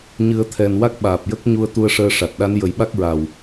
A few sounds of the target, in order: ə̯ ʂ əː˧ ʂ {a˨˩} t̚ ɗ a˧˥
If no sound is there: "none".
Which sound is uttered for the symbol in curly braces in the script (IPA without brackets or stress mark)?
a˨˩